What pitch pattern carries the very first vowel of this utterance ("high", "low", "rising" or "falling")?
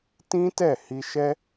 high